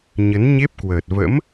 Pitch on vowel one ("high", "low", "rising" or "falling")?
rising